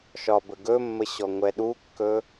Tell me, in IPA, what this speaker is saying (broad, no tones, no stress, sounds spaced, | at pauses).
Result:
ʃ ɒ b ə ɡ ɵ mː ə ɕ ɔ ŋʷ ɛ ɗ u kː ɵ